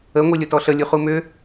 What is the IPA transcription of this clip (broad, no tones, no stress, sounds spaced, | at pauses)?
ə ŋʷ i lʲ ʊ t ɔ ɬ ə lʲ u χ u m ʏ